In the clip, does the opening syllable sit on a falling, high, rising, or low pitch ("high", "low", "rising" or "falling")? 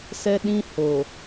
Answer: high